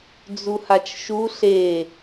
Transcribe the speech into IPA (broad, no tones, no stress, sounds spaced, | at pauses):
d͡z u h a t͡ʃ ʃ u ɬ e